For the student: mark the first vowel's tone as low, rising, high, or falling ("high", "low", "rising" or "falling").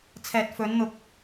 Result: low